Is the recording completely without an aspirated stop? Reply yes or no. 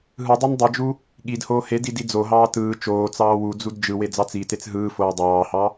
yes